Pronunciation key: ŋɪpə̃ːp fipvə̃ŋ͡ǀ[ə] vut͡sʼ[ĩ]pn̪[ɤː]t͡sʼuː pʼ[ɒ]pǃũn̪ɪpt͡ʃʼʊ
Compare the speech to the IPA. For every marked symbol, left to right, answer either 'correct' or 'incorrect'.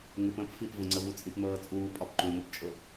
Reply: correct, correct, correct, correct

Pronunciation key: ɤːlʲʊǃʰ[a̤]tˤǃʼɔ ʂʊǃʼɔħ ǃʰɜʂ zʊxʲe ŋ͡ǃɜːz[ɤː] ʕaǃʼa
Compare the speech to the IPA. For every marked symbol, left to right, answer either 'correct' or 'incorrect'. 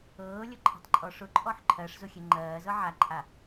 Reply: correct, incorrect: ɤ

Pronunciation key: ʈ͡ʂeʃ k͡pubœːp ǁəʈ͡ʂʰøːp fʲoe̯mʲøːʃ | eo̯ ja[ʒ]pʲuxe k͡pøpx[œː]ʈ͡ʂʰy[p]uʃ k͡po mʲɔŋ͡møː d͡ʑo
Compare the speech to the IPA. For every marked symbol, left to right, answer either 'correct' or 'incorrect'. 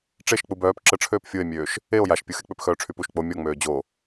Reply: incorrect: ʃ, correct, correct

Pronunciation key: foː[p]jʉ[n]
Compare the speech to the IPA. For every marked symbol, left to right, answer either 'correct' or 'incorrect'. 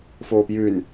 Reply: correct, correct

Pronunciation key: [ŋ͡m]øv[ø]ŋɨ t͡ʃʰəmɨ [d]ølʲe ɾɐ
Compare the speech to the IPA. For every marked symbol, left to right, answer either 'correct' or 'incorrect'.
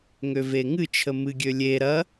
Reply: incorrect: ŋ, incorrect: e, incorrect: ɡʲ

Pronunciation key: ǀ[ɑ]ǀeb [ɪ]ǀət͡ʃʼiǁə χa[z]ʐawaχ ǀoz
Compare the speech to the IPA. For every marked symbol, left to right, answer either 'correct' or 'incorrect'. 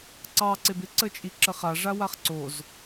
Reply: correct, correct, incorrect: none

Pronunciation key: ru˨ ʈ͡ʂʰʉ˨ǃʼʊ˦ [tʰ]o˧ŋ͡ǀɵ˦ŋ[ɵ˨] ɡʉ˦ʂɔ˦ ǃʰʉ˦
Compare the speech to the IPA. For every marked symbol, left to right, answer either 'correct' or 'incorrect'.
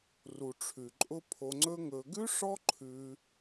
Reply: incorrect: pʰ, incorrect: ɵ˧

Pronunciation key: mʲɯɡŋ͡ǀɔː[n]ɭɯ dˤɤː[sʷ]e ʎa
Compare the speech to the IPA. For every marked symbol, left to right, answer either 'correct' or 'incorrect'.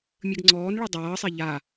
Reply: correct, incorrect: sˤ

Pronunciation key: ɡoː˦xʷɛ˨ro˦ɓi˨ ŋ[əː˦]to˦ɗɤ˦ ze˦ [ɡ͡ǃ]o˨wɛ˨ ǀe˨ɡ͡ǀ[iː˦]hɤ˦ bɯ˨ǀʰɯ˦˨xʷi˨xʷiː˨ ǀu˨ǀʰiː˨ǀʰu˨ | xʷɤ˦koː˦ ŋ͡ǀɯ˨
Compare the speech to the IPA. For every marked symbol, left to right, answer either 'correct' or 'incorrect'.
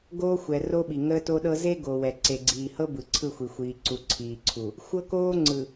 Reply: correct, incorrect: ɡ, incorrect: iː˨

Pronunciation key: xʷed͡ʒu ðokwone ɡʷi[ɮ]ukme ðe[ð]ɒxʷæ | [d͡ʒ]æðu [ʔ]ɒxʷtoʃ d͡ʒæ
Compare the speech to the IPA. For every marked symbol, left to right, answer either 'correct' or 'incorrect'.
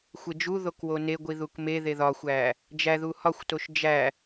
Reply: incorrect: ð, correct, correct, incorrect: h

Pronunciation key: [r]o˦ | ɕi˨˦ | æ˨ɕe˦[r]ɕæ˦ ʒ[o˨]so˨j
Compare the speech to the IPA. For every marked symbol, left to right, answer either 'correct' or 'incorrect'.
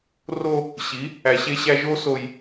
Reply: correct, incorrect: none, incorrect: o˦

